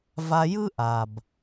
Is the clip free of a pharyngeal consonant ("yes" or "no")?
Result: yes